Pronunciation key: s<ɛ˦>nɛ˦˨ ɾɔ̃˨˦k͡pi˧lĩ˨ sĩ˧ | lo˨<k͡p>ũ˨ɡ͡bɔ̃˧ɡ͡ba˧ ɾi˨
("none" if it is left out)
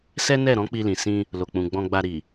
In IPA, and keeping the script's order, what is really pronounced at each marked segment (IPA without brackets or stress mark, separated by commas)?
ɛ˦, k͡p